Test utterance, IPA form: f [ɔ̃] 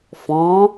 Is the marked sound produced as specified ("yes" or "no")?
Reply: yes